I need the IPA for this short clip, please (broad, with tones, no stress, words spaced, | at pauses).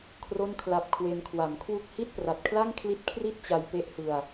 kʰro˥˩nkʰla˦˥p̚ kʰwe˧nkʰwa˨˩mkʰwu˥˩k̚ hi˥˩t̚pra˨˩t̚kʰla˥˩ŋkʰli˦˥t̚ kʰri˥˩t̚t͡ɕa˧jpe˦˥ʔhɯ˧a̯